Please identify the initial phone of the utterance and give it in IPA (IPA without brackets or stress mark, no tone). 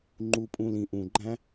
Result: ŋ͡ǃ